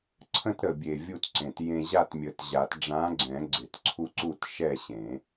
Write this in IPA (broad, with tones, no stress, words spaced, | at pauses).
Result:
ǀʰə̃˦tɾə˨˩bʲe˨˩ vʲu˥˨tǀẽ˨˩tjẽ˦ ʑa˥˨tmʲə˨˩˦tʑa˨˩˦t ɖ͡ʐã˨˥ɡ͡ǀɛ̃˨˩˦ ɡ͡ǀɪ˨˩˦tǀʰu˦ǀu˥˨t ʃɛ˥˨ɕẽ˨˩˦